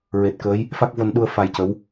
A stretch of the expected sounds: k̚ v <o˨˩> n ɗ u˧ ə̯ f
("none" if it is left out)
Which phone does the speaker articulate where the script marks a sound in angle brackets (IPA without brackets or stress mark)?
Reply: o˧